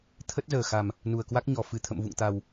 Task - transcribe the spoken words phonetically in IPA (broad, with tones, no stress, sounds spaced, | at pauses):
t̪ʰ ə˦˥ t̚ z əː˨˩ x a˨˩ m | n u˨˩ ə̯ k w a˦˥ k̚ ɲ ɔ˨˩ f ɨ˨˩ t̪ʰ ə̰˧˨ m v ṵ˧˨ ŋ t̪ a˨˩ w